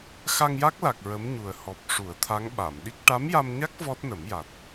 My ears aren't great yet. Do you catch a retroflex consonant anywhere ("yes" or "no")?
yes